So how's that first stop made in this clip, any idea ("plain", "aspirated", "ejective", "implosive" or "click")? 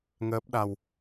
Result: plain